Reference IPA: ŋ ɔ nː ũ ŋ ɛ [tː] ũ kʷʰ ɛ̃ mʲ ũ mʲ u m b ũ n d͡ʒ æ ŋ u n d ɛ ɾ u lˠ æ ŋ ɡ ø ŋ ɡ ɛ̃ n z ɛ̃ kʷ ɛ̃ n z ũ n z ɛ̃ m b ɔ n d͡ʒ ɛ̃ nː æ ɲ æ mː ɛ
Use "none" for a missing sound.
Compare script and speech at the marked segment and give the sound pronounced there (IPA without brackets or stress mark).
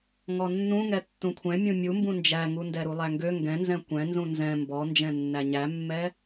tː